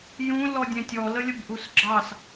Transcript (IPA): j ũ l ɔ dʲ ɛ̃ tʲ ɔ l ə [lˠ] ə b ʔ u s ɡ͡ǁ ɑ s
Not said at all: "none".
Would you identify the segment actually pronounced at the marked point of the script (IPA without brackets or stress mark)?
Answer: lʲ